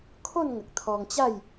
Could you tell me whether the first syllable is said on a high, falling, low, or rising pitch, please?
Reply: falling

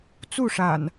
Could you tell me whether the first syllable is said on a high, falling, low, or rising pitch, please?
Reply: falling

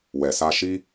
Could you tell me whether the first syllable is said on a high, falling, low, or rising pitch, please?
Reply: low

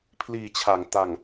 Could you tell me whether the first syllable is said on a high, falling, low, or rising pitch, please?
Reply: low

